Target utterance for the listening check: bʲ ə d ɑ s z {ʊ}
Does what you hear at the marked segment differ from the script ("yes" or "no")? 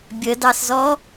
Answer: yes